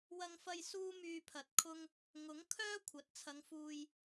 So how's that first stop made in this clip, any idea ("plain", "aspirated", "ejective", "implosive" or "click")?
aspirated